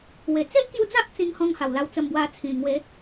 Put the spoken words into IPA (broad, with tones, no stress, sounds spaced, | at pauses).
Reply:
w e˨˩ t͡s e˦ ʔ k j u˧ d͡z a˦ ʔ t͡s ĩ˧ ŋ h ɔ̃˧ ŋ h a˨˩ w l a˧ w t͡s ə˧ m b w a˧ t͡sʰ ĩ˨˩ ŋ w e˨˦